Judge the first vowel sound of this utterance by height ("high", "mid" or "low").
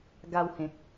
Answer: low